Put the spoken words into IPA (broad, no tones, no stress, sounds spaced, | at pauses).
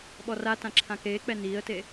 ɓ ɔ r a t ã ǁʰ ã k eː k͡p ɛ n iː ə̯ t e